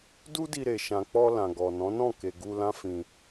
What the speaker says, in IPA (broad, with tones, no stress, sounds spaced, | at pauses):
d u˦ d i˧ ɾ e˨ ʃ ã˨ k͡p ɔ˧ l ã˨ ɡ ɔ˨ n ɔ̃˨˦ n ɔ̃˦˨ k e˨ ɡ u˧ l ã˦ f ĩ˧